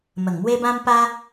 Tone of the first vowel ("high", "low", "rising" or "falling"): low